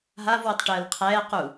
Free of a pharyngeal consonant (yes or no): yes